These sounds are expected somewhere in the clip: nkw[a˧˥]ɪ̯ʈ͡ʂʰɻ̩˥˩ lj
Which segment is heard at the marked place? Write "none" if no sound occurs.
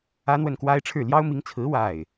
a˥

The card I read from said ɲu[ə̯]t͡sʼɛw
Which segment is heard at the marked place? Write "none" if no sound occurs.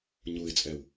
ɪ̯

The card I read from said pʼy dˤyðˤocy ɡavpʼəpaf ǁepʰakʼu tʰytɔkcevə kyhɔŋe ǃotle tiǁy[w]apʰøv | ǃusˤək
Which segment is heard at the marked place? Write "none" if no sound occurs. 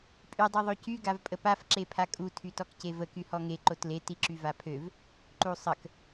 v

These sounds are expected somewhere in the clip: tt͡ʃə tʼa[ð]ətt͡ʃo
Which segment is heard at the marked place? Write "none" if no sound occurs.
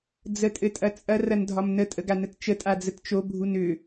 d͡z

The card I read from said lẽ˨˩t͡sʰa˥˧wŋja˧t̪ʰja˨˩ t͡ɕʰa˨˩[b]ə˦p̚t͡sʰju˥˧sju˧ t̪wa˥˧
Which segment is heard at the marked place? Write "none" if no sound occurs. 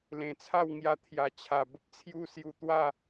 b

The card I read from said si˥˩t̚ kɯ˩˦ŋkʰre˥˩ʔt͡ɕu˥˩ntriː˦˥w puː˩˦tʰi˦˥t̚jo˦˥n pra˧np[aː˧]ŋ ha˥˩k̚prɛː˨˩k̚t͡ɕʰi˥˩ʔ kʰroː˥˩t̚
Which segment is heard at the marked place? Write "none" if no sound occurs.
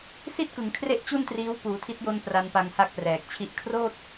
a˧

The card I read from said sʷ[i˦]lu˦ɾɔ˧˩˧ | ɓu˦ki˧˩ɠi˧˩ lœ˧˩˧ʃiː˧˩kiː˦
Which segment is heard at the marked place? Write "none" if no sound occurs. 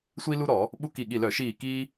i˦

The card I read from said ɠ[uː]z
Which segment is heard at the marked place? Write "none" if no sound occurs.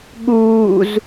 uː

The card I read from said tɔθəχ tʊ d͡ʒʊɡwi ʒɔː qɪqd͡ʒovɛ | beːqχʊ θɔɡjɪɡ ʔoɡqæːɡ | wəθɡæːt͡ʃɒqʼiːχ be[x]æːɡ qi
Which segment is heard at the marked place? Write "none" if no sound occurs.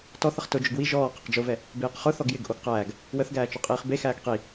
x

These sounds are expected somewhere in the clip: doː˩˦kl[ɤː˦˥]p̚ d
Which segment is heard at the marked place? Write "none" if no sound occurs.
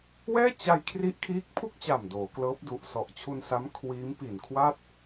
ɤː˦˥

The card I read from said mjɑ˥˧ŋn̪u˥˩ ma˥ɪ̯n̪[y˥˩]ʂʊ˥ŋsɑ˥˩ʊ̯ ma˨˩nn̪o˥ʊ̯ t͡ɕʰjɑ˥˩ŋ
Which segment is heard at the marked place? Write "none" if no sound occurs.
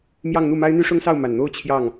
y˥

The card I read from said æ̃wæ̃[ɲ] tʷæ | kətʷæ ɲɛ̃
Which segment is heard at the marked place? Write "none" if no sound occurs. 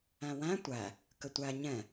none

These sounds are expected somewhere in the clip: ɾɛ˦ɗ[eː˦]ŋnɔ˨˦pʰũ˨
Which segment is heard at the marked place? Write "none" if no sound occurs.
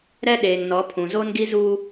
eː˨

